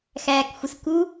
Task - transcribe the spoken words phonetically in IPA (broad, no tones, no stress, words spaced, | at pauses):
xæːkxʷəsku